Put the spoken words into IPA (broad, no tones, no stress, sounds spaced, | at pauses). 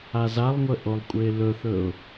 a z a lˠ ŋʷ ə ʔ o lˠ kʷʼ ɘ ɪ̯ l ɵ θ ɵ ʊ̯